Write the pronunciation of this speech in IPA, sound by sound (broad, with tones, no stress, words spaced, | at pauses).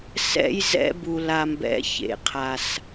sɛ̰˦j zɛ̰˧ bu˨la˨mbɛ̰˨˦ çḛ˨qʰa˨s